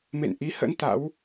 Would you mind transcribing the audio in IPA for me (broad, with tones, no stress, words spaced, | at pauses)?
mḛ˧˨nʔi˨˦hə̰˧˥n t̪a̰˧˥w